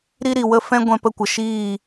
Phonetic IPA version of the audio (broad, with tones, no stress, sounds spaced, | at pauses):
ɾ i˦ ɾ i˨ w ə˦ f ɛ̃˦ ɡʷ ɛ̃˧ p ə˧ kʷ ə˨ ʃ iː˦˨